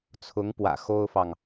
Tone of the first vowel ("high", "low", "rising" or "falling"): rising